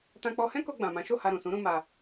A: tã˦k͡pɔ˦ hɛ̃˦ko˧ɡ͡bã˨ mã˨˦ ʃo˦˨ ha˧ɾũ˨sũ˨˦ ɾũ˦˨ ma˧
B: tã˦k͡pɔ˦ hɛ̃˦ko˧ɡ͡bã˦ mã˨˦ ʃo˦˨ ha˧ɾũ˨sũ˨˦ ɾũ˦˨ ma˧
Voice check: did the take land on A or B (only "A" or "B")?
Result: A